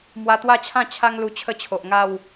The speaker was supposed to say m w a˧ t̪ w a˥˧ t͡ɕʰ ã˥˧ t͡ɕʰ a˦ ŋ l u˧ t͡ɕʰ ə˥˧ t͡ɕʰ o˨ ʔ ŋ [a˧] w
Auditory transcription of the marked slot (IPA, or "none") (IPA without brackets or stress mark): a˥˧